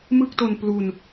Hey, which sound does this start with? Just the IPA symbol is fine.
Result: m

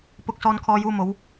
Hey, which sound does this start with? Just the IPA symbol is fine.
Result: p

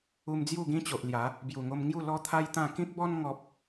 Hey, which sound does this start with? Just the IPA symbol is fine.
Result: u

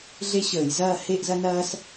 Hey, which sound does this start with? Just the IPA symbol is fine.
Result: ɮ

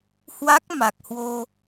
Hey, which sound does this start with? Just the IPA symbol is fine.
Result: h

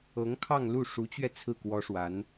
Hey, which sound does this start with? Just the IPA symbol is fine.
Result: ɤ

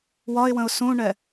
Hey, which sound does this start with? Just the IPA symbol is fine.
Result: w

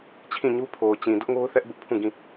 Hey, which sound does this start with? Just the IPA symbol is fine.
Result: t͡ɕʰ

